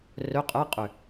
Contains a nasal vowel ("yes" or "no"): no